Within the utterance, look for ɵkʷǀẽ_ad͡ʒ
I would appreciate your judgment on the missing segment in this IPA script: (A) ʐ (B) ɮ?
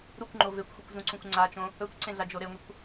B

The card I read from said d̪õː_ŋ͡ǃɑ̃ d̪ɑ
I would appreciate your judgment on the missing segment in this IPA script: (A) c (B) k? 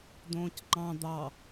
A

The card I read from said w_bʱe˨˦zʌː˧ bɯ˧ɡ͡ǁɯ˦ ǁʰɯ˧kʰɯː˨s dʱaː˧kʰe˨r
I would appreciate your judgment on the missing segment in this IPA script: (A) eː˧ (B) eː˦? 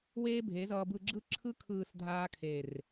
B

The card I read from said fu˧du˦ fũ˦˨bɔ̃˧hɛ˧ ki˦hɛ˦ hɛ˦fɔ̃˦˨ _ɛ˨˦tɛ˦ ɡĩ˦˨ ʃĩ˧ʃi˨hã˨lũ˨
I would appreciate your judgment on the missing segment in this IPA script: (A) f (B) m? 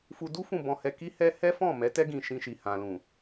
B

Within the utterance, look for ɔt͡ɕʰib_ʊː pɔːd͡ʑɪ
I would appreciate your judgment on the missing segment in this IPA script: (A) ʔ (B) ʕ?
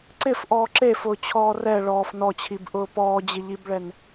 A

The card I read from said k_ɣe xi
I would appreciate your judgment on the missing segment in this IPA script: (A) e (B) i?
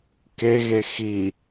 A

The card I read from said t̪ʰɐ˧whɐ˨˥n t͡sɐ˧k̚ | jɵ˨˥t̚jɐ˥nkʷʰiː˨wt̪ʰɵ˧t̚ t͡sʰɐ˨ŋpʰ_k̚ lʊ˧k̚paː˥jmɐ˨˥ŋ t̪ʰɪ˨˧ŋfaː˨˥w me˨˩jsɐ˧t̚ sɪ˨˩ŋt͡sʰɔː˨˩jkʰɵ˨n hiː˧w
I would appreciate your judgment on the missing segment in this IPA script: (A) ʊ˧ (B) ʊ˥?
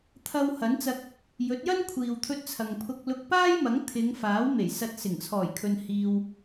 A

